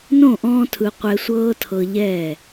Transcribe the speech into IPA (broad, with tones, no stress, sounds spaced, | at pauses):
n õ˦˨ ʔ ɔ̃ː˧ tʰ ɯ˨ qʷ ɛ˧ sʷ ɤː˦ tʰ ɤ˧ ʎ ɛː˦˨